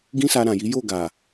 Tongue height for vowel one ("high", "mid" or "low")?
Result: high